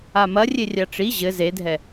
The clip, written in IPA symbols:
a m ɐ rʲ e rʲ a ʈ͡ʂ i ʑ ɘ z e dʱ ɛ

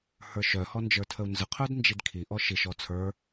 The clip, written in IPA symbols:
h ə˞ ʃ œ h ɔ n d͡ʒ ə˞ tʰ ə u̯ n z ə qʰ œ d n d͡ʒ i d kʰ i ʔ ɔ ʃ i ʃ ɔ t͡sʰ ə˞

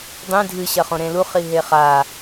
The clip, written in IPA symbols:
dˤ ĩ dʱ ɨ ɕ ɐ χ õ ɾ ẽ l u χ i ɦ e χ a

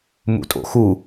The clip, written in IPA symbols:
m ṵ tʼ o̰ x u

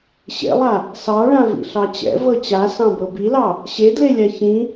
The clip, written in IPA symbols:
ɕ ḛ lˠ a | s ɑ ɭ ã v ḭ ɬ ɑ t͡ɕ ɛ̰ v ɤ t͡ɕ a s ɑ̃ b ɤ b i l ɑ | ɕ e d l e lʲ a ç ĩ

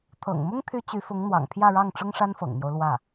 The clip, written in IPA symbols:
t̪ʰ ɤ̰˨˩ ŋ m ʊ˥ ŋ t̪ʰ y˥ t͡ɕ y˧˥ f ʊ˧˥ ŋ n̪ w ɑ̰˨˩ ŋ pʰ j ä˥˧ ɻ ɑ˥˩ ŋ ʈ͡ʂ ʊ˥ ŋ ʂ a˥ n f ɤ̰˨˩ ŋ n̪ j o˦ ʊ̯ l w ä˥˩

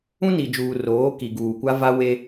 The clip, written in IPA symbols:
ũ˦ n i˨ d͡ʒ uː˨ r oː˨˦ k i˨ ɡ uː˨ kʷ a˦ v a˦ w e˦

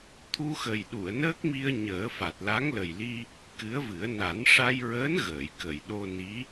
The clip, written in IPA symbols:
t̪ʰ u˧ x ə˨˩ j ɗ u˨˩˨ ə̯ n əː˦˥ k̚ m i˧ ə̯ ɲ əː˨˩˦ f a˨˩ t̚ l a˧˥ ŋ l ə˨˩ j l i˧ | k ɨ˧˥ ə̯ v ɨ˨˩˦ ə̯ n a˨˩˦ n ʂ a˧ j ɹ əː˧˥ n ɣ əː˨˩˨ j k ə˨˩˨ j ɗ o˧ n i˧˥

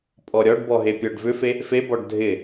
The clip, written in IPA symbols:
pʼ ɔ ɾʲ ɔ ɖ b ɔ ɦ e pʲ ɔ ɖ v ʏ f e | f e b ɔ ɖ dʱ ɪ

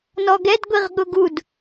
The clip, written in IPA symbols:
n ɔ ɡ ɛ d ɡʷ i ʁ ɠ ʊ ɡ u d

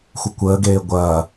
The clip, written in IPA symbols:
xʷ ə kʷ əː ɡ eː ɡʷ ɐː

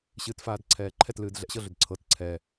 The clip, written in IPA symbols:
ɕ ɨː t f aː d ǀʰ ɛː ǃʰ ɛ t l ɨː d ɮ ɛ̰ ɕ ɤ ɮ ʏ d ǀʰ ɤ t ǀʰ ɛ

